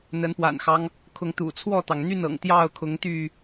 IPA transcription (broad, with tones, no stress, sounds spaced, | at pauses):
n̪ ə˨˦ n p w a̰˨˩ n x ɑ˦ ŋ | kʰ ʊ˨˦ ŋ t̪ ṵ˨˩ t͡sʰ w ɔ˥˨ t̪ ɑ˩ ŋ n̪ y˥˨ n ɤ̰˨˩ ŋ t̪ j ɑ˥˨ ʊ̯ kʰ ʊ˨˦ ŋ t̪ y˥˨